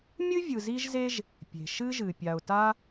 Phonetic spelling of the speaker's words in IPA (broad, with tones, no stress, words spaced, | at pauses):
mʲɨ˥vʲɯ˨zi˦ʒze˦ʒ | pʲe̤˩ʃɨ˦ʒɨ˩ pʲa˨ʊ̯ta˦